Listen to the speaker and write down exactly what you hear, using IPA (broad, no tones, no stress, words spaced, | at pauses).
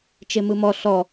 t͡ʃemɯmɔ ɬɔ